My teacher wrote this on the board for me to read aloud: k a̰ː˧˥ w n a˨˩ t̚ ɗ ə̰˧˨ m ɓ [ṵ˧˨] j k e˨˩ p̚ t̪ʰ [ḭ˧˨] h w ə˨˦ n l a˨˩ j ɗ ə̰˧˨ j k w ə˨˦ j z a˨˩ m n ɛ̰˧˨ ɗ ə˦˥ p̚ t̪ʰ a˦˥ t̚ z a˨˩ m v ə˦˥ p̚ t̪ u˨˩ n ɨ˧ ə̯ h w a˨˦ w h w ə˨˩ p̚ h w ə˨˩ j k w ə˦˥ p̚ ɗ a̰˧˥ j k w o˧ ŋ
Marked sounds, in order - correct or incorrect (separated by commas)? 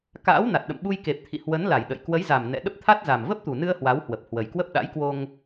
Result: incorrect, correct